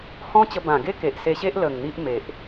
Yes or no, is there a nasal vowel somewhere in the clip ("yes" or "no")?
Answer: yes